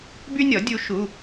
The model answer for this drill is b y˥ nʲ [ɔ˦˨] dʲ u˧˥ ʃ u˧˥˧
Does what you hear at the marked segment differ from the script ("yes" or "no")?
yes